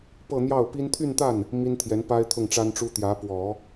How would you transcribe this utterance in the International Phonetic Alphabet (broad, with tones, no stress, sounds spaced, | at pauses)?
p ɤ˥˧ n̪ j ɑ˥˩ ʊ̯ p i˥ n t̪ʰ y˥˧ n t̪ a˥˩ n | m i˥ n t̪ʰ j ɛ˧˥ n p a˥ ɪ̯ t̪ʰ ʊ˥˩ ŋ ʈ͡ʂ a˥ n ʈ͡ʂ u˥ t̪ j ä˧˥ p w ɔ˨˩˦